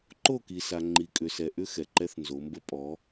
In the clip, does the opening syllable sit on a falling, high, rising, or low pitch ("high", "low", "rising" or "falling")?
falling